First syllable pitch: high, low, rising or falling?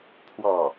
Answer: falling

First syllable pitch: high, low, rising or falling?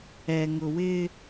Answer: low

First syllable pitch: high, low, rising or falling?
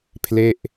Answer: falling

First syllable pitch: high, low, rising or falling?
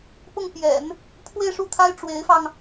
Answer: falling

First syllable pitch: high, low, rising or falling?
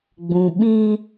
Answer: low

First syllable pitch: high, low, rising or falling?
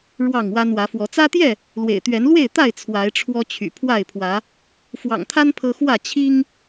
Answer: falling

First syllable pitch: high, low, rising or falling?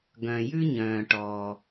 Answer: low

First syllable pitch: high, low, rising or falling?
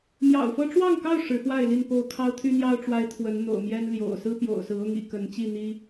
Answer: low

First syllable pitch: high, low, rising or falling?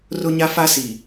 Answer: high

